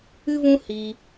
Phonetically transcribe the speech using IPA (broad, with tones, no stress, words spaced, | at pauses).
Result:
ɨ˦vũ˦hiː˧